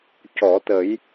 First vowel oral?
yes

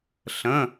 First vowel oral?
no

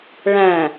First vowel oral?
no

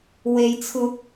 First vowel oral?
yes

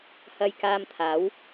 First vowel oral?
yes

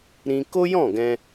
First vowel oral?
no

